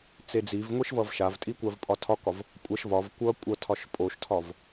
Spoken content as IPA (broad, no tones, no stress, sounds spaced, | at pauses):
t͡s e d͡z i v ŋʷ i ʃ v ʌ v ʃ a v tʼ i kʷ a v pʼ ɒ tʰ ɒ k ɒ v | kʷʼ ɐ ʃ v ɒ v kʷ ʌ kʷʼ ʌ tʰ ɒ ʃ pʼ o ʃ tʰ ɒ v